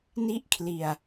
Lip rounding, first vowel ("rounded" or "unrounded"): unrounded